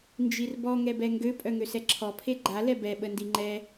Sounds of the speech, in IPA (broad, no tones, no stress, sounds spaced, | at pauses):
n d͡ʒ i r b ɔ ŋ ɛ b ɛ ŋ ɡ ø pʼ œ ŋ ø s ɛ ǁʰ ɔ pʰ e ɡ͡ǃ a l ɛ b ɛ ɓ ə n d i ŋ͡ǃ ɛ